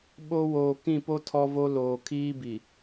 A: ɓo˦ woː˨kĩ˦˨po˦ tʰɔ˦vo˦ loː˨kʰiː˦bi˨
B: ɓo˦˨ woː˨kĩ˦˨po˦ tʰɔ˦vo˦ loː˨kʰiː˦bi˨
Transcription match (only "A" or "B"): A